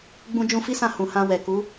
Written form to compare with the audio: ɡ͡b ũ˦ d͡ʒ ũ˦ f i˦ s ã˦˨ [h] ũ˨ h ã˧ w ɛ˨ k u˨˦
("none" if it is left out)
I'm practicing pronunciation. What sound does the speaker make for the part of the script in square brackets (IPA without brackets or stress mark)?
h